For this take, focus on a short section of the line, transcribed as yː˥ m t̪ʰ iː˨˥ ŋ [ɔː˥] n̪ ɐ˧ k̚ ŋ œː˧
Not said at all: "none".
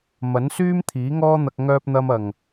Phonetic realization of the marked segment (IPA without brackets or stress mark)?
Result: ɔː˥